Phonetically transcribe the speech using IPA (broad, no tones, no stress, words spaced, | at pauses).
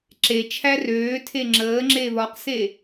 ǁet͡ʃʰæ røːtʰe ŋ͡ǁəːŋ͡ǁe βɒqse